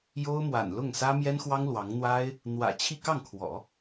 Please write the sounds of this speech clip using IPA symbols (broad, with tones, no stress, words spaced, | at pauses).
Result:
jo˥ʊ̯ mwa̰˨˩nlʊ˥˩ŋsä˥ mjɛ˥nxwɑ˥ŋlwɑ˧˥ŋn̪wa˥ɪ̯ | n̪wä̰˨˩ t͡ɕʰi˥˧ kɑ˥˩ŋ kʰwɔ̰˨˩˦